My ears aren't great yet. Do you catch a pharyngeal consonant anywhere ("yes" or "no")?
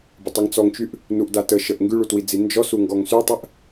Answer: no